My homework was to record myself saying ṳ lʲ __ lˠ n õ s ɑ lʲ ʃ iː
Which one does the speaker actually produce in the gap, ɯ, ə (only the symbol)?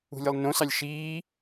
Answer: ɯ